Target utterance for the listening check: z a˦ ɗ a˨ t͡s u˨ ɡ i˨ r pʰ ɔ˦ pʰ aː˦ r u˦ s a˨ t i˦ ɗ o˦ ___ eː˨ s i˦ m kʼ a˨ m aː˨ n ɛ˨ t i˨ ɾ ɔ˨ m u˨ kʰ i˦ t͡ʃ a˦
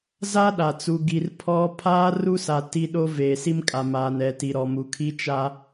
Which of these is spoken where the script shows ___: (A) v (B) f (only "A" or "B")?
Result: A